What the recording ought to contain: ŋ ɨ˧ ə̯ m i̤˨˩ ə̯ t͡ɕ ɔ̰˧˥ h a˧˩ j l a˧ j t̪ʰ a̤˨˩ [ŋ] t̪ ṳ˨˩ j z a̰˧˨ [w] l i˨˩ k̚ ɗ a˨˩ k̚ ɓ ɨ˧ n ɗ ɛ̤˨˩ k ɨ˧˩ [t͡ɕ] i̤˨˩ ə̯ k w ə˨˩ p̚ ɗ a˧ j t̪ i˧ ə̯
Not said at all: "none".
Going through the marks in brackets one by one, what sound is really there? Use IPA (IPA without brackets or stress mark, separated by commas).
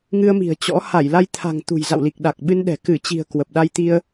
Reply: ŋ, w, t͡ɕ